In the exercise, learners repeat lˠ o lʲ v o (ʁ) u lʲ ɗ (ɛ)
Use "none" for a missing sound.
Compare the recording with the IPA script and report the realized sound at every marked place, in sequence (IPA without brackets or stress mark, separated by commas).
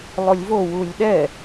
w, ɛ